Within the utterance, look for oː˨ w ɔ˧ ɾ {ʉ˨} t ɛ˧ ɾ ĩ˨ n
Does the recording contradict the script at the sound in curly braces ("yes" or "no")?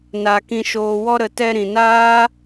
yes